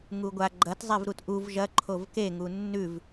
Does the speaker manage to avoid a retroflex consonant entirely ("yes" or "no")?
yes